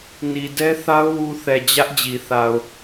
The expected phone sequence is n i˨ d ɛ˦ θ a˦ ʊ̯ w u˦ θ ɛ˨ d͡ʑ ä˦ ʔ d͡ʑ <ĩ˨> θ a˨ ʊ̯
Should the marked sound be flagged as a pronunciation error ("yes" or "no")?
yes